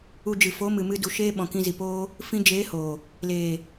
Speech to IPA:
u˧ d͡ʒ ɨ˨ f o˨˦ m ɨ˨ m ɨ˧ d u˨ ʃ eː˦ ɓ ɔ̃˨ k ĩ˧ z i˨ p oː˦ | f ĩ˧ d͡ʒ eː˨˦ h o˨ | l eː˨

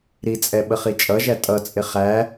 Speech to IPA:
ɾ i t͡sʼ ɛ ɓ ə χ i t͡ʃʼ ʌ ʒ æ tʼ ʌ t͡sʼ ɪ χ æ

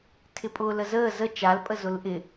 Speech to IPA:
tʰ ɪ pʼ ʊː l ə z əː z ə t͡ʃ a l pʼ ə z ʊ l ʔ ɪ

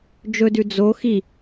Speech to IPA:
d͡ʒ ɵ d ʉ d͡z o x i

